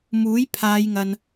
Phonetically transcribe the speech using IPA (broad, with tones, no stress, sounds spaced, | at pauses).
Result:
m uː˨˥ j pʰ aː˨˧ j ŋ ɐ˨ n